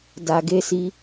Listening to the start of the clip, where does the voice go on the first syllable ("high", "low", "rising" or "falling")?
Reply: low